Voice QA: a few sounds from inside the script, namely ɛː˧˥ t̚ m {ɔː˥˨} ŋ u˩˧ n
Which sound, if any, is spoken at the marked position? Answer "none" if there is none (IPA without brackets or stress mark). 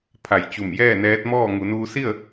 ɔː˥˨